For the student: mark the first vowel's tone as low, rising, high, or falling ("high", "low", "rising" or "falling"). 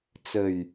low